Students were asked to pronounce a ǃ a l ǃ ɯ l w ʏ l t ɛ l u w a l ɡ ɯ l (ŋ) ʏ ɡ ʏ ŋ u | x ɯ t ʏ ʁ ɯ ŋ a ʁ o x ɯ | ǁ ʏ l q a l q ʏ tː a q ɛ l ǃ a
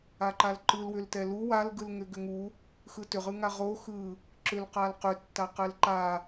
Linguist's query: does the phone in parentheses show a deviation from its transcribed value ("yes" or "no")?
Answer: no